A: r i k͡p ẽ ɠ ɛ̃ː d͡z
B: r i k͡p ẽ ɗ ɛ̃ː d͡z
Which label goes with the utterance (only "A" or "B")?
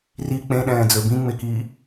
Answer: B